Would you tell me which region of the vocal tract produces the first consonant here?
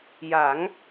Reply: palate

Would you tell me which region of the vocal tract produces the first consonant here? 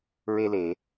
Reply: tongue tip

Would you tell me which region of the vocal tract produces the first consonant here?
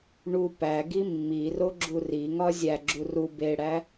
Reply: retroflex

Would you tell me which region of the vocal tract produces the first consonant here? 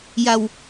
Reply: palate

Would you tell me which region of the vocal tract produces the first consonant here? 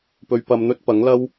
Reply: lips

